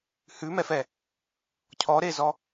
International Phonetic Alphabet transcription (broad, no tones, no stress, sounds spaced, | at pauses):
h ʉ m ɛ f ɛ | cʰ ɔ ɾ e z ɔ